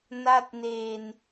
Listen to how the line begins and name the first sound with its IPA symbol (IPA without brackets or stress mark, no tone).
n